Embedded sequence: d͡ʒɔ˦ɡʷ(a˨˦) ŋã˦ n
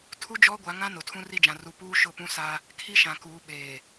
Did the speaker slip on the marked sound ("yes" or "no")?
no